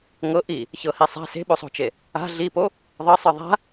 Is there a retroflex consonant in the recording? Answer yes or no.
no